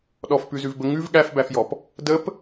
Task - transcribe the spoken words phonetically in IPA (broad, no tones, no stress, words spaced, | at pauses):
ɗɔfpʉzʉvbə ŋʉv ɠæfbæfjɔp | dəp